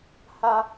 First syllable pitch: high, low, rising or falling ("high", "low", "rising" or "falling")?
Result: high